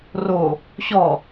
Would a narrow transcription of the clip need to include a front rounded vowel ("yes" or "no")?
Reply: no